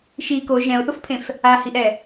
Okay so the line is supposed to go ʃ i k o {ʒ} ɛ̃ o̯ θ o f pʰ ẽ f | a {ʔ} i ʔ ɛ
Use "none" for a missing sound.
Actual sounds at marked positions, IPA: ʒ, h

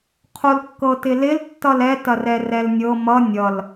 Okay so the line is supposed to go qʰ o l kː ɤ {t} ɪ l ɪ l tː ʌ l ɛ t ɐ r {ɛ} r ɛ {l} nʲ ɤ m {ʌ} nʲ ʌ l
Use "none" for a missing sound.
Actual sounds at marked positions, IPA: t, ɛ, l, ʌ

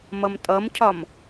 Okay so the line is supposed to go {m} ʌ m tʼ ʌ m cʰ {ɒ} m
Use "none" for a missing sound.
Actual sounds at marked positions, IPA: m, ɒ

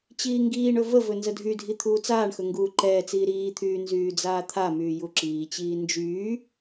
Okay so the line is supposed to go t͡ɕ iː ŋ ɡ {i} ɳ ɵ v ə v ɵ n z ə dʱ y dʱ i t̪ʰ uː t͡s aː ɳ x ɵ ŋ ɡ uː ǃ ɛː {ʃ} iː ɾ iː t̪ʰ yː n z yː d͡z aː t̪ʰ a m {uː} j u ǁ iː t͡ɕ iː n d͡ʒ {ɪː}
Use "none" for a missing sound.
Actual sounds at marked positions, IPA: iː, t͡s, yː, yː

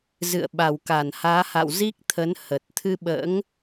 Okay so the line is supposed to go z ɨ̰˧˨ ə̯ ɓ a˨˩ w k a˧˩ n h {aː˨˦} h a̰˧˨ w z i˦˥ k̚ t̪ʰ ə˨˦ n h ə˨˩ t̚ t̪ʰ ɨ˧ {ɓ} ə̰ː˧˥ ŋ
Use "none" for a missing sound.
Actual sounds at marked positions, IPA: aː˨˦, ɓ

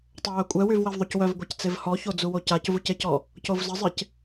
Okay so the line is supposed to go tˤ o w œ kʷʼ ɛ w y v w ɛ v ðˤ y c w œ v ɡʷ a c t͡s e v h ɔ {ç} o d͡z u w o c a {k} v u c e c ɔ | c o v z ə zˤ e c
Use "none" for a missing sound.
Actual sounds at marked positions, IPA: ç, c

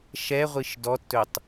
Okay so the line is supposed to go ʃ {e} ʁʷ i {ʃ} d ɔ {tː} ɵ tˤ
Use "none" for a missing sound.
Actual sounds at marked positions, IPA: ɛ, ʃ, tː

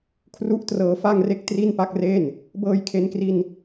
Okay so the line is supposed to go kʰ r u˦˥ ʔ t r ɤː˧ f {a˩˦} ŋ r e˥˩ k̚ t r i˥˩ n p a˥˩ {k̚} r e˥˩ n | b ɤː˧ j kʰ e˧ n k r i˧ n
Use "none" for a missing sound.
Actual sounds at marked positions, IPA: a˥˩, k̚

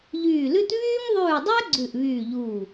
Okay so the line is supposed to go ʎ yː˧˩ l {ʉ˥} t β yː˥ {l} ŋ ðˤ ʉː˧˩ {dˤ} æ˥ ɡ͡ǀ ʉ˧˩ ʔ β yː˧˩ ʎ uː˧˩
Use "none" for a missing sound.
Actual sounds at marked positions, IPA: ʉ˥, none, dˤ

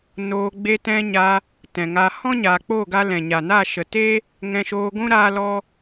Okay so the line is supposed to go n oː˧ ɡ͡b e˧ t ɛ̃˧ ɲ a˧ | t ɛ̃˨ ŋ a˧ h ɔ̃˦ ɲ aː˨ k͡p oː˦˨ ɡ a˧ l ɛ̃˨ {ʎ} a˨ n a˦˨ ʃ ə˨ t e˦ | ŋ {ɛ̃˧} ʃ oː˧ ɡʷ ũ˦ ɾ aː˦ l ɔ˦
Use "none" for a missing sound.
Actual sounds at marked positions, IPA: ɲ, ɛ̃˧

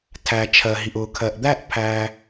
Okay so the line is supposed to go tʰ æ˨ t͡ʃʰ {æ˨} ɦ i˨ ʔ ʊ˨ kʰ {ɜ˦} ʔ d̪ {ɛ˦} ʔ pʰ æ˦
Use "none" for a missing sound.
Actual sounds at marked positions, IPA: ɜ˨, ɜ˨, æ˦

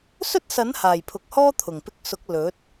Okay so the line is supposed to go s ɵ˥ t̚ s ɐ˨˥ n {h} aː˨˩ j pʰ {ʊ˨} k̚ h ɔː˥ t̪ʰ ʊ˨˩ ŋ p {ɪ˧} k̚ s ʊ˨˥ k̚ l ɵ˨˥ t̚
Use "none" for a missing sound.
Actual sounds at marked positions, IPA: h, ʊ˨, ɪ˧

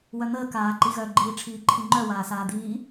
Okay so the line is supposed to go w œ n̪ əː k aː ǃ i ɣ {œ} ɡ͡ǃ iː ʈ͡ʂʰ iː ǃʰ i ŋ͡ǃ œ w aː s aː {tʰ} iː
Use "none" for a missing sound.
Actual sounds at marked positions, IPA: œ, d̪

